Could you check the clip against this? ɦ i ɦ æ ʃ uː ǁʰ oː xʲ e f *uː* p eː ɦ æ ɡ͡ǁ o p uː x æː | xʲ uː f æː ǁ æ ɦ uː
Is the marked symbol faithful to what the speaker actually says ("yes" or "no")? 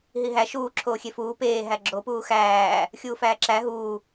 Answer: yes